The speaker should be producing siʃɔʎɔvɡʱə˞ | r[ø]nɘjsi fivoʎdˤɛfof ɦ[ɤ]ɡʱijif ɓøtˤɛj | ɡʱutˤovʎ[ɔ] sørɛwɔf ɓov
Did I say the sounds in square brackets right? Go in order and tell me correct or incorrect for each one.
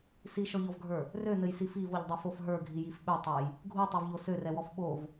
correct, incorrect, incorrect

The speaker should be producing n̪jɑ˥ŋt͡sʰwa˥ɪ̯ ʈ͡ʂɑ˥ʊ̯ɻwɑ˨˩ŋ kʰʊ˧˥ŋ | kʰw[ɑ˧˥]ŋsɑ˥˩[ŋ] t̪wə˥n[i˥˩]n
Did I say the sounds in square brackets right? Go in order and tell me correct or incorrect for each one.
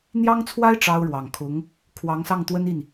correct, correct, correct

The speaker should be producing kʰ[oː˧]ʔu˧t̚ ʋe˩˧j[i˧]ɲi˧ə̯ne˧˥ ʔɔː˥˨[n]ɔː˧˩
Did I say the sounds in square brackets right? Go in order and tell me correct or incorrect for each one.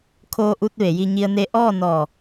correct, correct, correct

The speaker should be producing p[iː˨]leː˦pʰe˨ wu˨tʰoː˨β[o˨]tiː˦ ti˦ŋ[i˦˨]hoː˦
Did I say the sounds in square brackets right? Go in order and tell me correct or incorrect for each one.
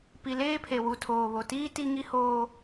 incorrect, correct, incorrect

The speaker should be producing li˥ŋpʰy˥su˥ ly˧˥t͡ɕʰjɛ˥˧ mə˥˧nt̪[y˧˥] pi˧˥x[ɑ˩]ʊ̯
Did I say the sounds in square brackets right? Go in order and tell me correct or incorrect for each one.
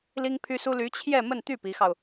incorrect, incorrect

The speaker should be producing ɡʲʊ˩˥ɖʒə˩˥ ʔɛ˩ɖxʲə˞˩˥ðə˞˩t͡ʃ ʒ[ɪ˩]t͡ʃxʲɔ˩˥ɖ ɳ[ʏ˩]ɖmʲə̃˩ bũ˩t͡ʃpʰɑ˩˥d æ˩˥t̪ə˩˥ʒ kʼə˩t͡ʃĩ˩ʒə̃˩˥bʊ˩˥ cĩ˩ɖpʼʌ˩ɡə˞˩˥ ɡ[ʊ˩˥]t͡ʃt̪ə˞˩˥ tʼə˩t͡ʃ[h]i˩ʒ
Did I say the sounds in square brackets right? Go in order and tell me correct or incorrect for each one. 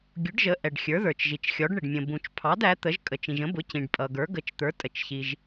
incorrect, incorrect, incorrect, incorrect

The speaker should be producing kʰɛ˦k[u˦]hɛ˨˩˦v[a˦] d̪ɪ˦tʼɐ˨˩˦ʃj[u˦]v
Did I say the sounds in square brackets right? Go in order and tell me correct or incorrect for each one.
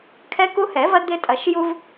correct, incorrect, correct

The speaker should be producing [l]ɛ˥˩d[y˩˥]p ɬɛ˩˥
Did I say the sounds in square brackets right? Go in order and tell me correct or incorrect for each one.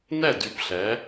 incorrect, correct

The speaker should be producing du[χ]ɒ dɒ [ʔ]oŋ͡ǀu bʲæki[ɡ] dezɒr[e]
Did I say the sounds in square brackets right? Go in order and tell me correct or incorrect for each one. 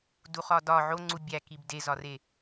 correct, incorrect, incorrect, correct

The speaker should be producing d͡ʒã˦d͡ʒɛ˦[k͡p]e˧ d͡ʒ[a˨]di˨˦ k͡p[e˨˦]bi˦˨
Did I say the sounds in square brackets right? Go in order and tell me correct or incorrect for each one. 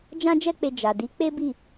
correct, correct, incorrect

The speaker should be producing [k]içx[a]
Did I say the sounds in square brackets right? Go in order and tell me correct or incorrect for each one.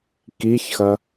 correct, incorrect

